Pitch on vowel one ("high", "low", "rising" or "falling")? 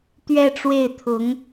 falling